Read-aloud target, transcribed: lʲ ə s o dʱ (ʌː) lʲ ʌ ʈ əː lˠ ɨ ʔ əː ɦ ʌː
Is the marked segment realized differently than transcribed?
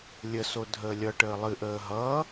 yes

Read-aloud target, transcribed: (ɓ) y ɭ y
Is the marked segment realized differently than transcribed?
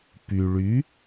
yes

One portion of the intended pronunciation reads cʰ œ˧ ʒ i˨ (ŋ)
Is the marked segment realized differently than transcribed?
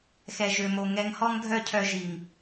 no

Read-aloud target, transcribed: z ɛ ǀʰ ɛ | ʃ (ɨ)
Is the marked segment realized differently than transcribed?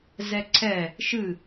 no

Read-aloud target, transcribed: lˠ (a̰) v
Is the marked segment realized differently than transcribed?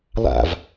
no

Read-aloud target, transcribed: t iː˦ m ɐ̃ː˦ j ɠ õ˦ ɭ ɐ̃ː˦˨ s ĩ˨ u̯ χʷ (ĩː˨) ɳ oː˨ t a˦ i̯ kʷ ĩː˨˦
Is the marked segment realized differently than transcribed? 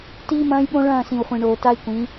yes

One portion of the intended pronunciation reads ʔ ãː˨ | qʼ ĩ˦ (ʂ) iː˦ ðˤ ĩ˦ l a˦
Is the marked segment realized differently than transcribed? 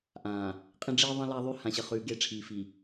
yes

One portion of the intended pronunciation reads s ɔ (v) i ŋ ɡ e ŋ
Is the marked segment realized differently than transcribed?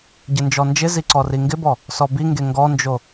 yes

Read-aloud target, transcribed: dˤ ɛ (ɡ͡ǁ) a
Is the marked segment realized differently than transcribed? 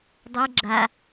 no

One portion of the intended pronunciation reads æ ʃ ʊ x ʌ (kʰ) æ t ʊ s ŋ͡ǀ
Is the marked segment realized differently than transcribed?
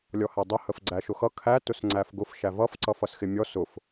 no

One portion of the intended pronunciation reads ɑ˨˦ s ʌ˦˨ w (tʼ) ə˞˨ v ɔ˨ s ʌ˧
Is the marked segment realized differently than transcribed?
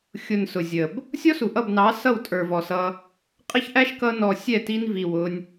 no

